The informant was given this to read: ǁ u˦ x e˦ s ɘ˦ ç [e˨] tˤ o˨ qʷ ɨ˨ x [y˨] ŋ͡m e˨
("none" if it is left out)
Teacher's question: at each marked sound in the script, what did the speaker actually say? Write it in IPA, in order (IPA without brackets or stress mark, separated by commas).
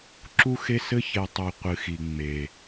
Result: e˨, i˨